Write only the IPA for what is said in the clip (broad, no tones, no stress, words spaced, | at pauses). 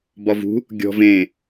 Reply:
bɒvṳ | ɡʲɔ̤v ẽ